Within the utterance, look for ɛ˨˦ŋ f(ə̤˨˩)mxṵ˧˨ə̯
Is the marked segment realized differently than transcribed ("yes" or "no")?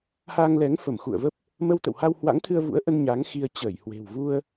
yes